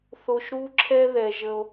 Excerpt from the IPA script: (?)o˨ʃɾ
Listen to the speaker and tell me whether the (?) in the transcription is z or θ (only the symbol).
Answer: θ